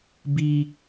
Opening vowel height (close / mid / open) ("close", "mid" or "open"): close